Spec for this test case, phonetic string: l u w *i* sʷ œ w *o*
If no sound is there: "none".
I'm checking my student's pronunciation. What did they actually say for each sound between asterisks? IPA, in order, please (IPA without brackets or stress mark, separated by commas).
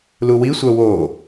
i, o